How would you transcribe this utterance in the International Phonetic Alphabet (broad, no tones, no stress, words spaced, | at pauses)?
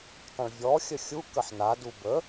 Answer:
tˤə̃ɭvʲɔ xʲəxʲu kəħnadu bə